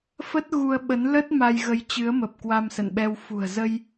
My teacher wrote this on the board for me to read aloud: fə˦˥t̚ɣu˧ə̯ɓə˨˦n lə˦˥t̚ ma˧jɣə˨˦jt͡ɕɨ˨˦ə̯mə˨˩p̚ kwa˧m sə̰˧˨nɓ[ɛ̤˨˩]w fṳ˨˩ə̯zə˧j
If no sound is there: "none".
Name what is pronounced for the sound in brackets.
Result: ɛ˧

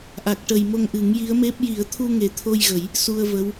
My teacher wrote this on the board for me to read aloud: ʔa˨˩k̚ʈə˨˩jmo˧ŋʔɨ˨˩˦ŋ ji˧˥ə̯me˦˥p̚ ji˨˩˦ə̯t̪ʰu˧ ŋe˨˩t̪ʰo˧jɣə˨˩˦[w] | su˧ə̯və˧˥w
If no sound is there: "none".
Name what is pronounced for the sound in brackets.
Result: j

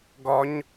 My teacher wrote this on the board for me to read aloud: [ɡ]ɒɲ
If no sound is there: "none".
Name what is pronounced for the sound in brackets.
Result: ɡ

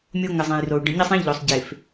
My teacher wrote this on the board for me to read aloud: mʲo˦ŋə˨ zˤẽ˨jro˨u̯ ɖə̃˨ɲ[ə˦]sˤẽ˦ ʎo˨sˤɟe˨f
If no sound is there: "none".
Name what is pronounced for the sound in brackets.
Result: ə˦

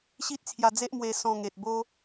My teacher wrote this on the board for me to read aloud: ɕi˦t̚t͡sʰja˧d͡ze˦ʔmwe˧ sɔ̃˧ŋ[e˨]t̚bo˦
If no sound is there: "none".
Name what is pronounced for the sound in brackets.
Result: e˨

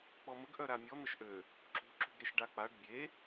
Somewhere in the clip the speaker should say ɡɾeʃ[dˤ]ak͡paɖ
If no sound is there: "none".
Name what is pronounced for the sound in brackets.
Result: ɖ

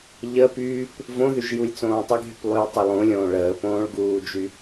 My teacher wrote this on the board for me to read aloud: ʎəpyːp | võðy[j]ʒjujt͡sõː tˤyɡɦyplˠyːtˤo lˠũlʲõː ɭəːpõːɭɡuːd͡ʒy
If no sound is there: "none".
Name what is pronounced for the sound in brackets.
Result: none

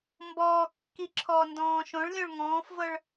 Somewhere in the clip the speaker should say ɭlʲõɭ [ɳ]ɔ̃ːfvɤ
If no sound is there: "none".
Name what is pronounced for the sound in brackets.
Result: ŋ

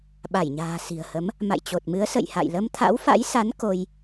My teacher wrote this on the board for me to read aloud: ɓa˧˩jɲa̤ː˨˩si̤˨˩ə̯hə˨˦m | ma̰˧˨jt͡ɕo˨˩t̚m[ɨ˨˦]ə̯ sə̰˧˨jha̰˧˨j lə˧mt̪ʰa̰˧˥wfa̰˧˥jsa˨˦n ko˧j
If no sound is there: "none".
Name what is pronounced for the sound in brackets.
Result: ɨ˨˦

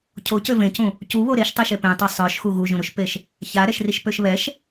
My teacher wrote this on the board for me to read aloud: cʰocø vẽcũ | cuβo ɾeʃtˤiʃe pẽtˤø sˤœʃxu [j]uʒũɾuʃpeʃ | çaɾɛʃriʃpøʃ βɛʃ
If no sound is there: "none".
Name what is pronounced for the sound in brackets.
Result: ɣ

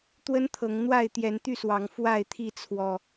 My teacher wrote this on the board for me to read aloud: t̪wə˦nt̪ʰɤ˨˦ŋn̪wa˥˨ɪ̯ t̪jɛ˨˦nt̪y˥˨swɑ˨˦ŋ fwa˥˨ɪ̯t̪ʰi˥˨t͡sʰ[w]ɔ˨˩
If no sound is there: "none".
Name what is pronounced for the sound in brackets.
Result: w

